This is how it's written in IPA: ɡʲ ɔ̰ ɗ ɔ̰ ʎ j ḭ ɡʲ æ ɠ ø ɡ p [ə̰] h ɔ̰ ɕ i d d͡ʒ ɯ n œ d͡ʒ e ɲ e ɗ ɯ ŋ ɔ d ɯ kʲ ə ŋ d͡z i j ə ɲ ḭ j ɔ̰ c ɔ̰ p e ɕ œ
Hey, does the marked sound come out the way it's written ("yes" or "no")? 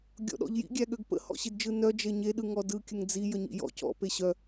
yes